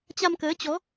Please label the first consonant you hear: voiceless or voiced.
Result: voiceless